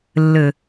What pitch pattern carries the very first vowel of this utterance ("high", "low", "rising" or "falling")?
low